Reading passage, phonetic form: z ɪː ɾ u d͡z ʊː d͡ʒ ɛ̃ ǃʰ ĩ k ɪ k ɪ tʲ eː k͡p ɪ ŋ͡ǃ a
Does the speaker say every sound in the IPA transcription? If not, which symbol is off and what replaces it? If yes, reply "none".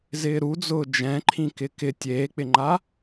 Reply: none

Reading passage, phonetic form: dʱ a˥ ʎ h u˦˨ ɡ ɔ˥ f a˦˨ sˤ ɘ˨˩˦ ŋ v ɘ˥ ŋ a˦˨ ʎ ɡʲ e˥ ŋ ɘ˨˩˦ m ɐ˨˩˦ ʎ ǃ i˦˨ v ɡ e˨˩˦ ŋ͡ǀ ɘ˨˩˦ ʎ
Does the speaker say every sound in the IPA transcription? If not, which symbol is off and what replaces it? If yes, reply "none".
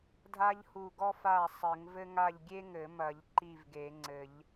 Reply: none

